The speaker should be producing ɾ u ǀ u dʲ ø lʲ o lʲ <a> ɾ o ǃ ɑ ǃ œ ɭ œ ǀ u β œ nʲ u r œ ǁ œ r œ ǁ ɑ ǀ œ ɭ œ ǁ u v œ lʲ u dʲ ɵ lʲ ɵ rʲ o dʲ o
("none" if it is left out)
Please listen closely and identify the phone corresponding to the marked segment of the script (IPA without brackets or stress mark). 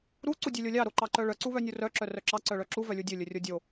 ɑ